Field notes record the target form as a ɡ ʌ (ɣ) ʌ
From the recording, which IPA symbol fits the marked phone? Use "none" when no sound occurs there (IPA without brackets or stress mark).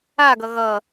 ɣ